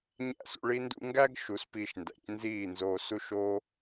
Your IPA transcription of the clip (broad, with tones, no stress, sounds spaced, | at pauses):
ɲ æ̰˦˨ s ṵ˧ ɭ i˦ n d ṵ˦ ŋ ɡ æ˦ ɡ ʃ u˨˦ s p iː˧ ʃ n d æ̰˨ c n z iː˦˨ n z o˧ s u˦ ʃ o˦